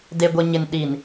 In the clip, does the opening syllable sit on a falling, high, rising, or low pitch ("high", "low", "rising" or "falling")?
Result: low